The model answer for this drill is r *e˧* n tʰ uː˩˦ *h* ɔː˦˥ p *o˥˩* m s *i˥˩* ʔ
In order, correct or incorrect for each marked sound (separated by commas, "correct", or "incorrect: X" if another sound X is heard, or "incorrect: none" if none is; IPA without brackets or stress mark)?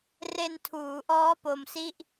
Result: correct, incorrect: ʔ, incorrect: o˧, correct